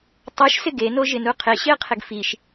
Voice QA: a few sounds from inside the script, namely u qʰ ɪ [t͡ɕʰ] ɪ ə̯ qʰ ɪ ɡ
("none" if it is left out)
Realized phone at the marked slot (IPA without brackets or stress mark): ɕ